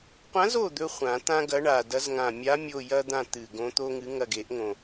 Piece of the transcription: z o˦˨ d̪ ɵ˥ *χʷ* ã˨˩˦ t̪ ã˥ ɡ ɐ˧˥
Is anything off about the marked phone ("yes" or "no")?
no